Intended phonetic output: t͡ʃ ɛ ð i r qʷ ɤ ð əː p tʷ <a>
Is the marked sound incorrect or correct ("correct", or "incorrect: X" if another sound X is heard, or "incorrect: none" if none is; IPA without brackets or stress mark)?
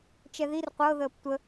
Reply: incorrect: ə